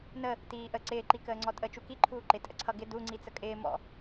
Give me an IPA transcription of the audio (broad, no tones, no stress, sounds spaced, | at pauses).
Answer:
n ə | t iː ʔ ə ǀ ɪː ǃ i k əː ŋ͡ǀ ɔ tʼ ə t͡ʃ u k i ǃʰ uː ǃ ɪ tʼ ə̰ ǀʰ ʌ ɡ ɪ d u ŋ͡ǀ i t͡s ə kʼ ɪː m ɔ̰